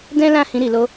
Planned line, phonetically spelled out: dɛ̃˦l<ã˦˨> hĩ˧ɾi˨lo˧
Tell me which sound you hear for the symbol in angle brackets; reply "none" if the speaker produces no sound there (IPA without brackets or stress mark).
ã˦˨